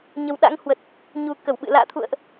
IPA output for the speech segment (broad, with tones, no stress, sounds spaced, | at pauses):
ɲ ə˨˩ w ɗ a̰˧˥ ŋ h w ə˨˩ t̚ | ɲ u˨˩ k ə˧˩ w ɓ ɨ̰˧˨ l a̰ː˧˨ t̪ʰ ṵ˧˨ ə̯ ʔ